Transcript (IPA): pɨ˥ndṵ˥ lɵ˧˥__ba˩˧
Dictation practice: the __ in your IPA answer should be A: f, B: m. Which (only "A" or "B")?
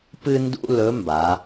B